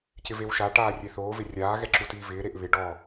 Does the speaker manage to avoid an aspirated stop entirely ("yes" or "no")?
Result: yes